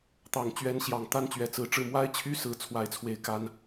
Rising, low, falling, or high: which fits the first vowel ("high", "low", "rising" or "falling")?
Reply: low